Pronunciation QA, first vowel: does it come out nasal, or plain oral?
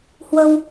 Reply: oral